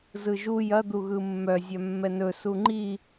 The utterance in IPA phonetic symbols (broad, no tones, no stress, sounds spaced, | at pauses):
z ɯ ʒ u j ɐ d̪ u ɣ ɯ mː œ zʲ œ mː ɛ n ɵ s u ŋ͡ǃ i